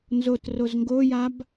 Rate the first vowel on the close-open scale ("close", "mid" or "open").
mid